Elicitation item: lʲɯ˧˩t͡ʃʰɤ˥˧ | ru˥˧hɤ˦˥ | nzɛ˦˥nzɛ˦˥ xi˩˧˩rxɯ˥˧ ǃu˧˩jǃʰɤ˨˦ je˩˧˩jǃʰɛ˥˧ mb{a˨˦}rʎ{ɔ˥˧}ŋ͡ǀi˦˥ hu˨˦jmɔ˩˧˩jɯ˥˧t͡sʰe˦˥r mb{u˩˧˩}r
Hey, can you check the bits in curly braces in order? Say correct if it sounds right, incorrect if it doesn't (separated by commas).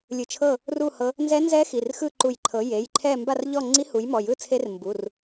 incorrect, correct, correct